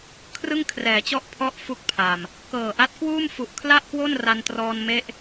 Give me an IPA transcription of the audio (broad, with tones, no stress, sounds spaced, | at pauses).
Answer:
kʰ r ɯ˥˩ ŋ kʰ r ɛː˩˦ t͡ɕ ɔ˥˩ ʔ pʰ ɔ˥˩ ʔ f u˥˩ k̚ pʰ a˨˩ m | k ɤː˨˩ ʔ a˦˥ t̚ k w uː˥˩ m f u˨˩ ʔ kʰ l a˥˩ ʔ k w o˥˩ n r a˧ n t r ɔː˧ n m e˥˩ ʔ